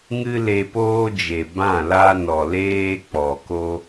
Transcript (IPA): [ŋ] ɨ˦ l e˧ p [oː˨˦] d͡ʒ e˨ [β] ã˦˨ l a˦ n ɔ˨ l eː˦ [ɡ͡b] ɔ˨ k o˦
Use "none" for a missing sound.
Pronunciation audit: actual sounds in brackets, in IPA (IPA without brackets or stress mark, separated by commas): ŋ, oː˦, b, k͡p